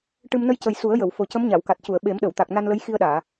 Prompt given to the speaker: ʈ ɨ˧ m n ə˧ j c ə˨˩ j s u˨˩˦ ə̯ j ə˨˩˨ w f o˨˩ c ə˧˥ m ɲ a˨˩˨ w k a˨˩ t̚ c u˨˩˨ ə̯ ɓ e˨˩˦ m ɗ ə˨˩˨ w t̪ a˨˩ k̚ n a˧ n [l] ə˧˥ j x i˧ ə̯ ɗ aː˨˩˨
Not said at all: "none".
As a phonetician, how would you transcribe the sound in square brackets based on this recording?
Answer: l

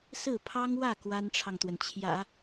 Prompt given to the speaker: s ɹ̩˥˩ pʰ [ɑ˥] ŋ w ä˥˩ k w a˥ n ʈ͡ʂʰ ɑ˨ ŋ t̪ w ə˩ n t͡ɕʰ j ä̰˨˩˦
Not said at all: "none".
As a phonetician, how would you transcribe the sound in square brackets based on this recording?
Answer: ɑ˥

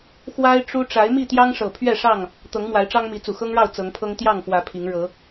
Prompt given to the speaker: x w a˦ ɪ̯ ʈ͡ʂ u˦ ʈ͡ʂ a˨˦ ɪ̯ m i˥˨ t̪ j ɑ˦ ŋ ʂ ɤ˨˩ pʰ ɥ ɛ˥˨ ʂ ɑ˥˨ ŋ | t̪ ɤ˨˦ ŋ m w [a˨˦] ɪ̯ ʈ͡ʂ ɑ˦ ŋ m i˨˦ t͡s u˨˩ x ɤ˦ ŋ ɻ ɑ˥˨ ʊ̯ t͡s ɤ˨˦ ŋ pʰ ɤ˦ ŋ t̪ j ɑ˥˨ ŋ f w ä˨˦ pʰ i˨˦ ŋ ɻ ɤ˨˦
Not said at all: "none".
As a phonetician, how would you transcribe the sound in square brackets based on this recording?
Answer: a˨˦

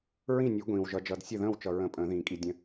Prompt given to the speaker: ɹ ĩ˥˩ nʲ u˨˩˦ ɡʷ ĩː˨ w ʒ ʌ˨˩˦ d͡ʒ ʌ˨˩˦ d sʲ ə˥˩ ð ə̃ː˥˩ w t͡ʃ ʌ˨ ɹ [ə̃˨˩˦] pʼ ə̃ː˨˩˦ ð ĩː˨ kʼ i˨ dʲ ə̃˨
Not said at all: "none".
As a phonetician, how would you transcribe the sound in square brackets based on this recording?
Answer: ə̃˨˩˦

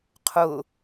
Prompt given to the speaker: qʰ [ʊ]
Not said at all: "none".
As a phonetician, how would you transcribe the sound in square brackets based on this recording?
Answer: ʊ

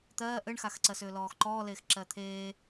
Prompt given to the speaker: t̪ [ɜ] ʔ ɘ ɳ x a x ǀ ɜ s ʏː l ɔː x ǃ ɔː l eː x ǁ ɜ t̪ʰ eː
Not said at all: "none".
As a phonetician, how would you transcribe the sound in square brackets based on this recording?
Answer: ɜː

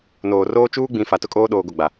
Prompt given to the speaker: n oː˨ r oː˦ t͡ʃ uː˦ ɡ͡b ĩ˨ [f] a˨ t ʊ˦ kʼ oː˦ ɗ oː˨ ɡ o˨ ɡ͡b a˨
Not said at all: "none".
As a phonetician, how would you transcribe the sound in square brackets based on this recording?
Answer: f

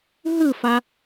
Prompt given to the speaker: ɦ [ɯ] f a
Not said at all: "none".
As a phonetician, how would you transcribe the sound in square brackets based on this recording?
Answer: ɯ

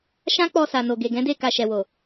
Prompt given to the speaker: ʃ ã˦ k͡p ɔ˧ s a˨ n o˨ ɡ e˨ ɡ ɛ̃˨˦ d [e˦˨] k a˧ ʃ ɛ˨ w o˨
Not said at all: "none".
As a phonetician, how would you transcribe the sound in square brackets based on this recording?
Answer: e˦˨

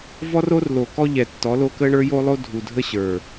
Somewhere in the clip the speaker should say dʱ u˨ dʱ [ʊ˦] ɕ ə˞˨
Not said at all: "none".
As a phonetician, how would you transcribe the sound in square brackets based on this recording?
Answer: ə˦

